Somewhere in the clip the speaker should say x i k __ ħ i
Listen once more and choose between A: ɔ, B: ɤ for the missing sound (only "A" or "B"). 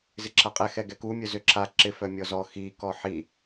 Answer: A